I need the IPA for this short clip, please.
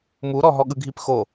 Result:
m u ɾ ɔ ɦ ɔ ɠ ɯ ɡʱ i p x o

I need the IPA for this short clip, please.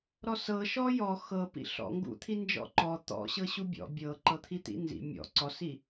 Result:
ɾ ɔ s ɤ ʃ ɔ j ɔ x ɤ p ḭ ɬ ɔ̰ ŋ ɡ ṵ t̪ʰ i n d͡ʒ ɔ̰ ǃ ɔ t̪ ɔ̰ ɕ ɤ ɕ u bʲ ɔ̰ bʲ ɤ ǃ ɤ t̪ʰ i t̪ ḭ n z ḭ mʲ ɔ̰ ǀ ɔ s i

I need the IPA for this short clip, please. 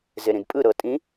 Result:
z e ɾ ĩ d pʼ ɯ ɾ ɤ tʼ ĩ

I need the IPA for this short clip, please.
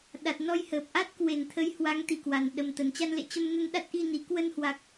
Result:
ɗ a˨˩ t̚ n ɔ˧ j h əː˨˩ p̚ ʔ a˦˥ t̚ k w e˨˩ n t̪ʰ ə˨˦ j h w a˨˦ ŋ t̪ i˨˩ k w a˨˩ n ɗ ə˨˩ m t̪ ə˨˩ n t͡ɕ a˧ n l ḛ˧˨ t͡ɕ ə˧ m n ə˧ n ɗ a˦˥ t̚ ʔ i˧ n i˧˩ k w ə˧ n h w a˨˩ k̚

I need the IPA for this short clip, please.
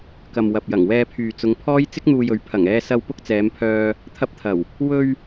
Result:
k ɐ˨ m w ɐ˨ p̚ j ɐ˨˩ ŋ w ɛː˧ pʰ yː˨ t͡s ʊ˨˧ ŋ pʰ ɔː˥ j t͡s ɪ˥ k̚ n̪ uː˧ j ɵ˨˥ ɥ pʰ ɐ˨˩ ŋ ɛː˧ s ɐ˧ w p ʊ˥ k̚ t͡s ɛː˨˧ m pʰ œː˧ | t̪ʰ ɐ˧ p̚ t̪ʰ ɐ˨˩ w | w ɵ˧ ɥ

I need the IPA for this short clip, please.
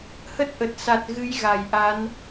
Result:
h ə˦˥ t̚ ʔ ə˨˩ t̚ s a˨˩ t̚ ɣ ɨ˨˦ j ɣ a˧˩ j ʔ a˨˦ n

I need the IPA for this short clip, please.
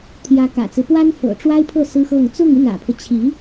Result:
t̪ʰ j ä˧˥ k ä̰˨˩ t͡s ɹ̩˦ p w a˥ n f ɤ̰˨˩ ʈ͡ʂ w a˥ ɪ̯ pʰ ɤ˥˩ s ɹ̩˥ x ɤ˥˧ ŋ t͡s ʊ˥˧ ŋ y˥˩ n ä̰˨˩ pʰ ɤ˦ t͡ɕʰ i˧˥

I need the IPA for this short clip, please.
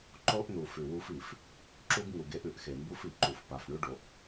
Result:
ǃ o˦ ʔ n u˨ f ʉ˨ w u˦ f i˨ f | ǁ u˦ ɡ ŋ u˨ ɡ e˦ ʔ ʉ˨ ʔ x e˨ m b u˦ f i˨ ǃ u˨ f p a˨ f ɳ ʉ˦ ɖ o˨ ʔ

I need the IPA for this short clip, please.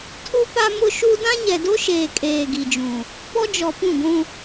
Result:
tʰ u˦ p a˦ m ʊ˦ ʃ u˦ d ã˦ ɲ ɛ˨ d o˦ ʃ eː˨ kʼ eː˨ ɡ i˨ d͡ʒ ũ˨ | p ɔ˦ d͡ʒ ɔ˨ p ũ˦˨ ɡʷ ũ˦

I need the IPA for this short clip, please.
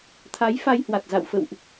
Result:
t̪ʰ a˨˦ j f a˧ j h w a˨˩ t̚ z a̰˧˨ w f ə̰˧˨ w ʔ

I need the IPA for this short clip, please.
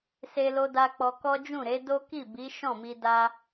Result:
s e˧ l o˧ d a˧ k͡p ɔ˧ k ɔ˦ d͡ʒ ũ˦˨ ɾ e˨˦ d o˦ k i˦˨ b i˨˦ ʃ ɔ̃˦˨ m i˧ d a˧

